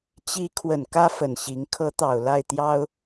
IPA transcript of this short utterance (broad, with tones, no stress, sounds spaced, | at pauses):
t͡ɕ i˧˥ kʰ w ə˨˩ n k ä˥ f ə˨˩ n ɕ i˧˥ ŋ kʰ ɤ˧˥ t̪ ɑ˨˩ ʊ̯ l a˥˩ ɪ̯ t̪ j ɑ˥ ʊ̯